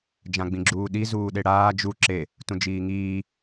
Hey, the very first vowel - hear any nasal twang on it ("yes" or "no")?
yes